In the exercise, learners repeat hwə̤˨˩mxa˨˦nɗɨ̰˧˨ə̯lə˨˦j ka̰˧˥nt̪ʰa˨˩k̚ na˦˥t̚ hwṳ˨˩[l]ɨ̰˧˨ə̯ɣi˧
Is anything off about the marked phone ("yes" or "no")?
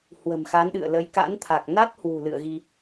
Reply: no